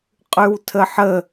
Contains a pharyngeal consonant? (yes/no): yes